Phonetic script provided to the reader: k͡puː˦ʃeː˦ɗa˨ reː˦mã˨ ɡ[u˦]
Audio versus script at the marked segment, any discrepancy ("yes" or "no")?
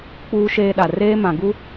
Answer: no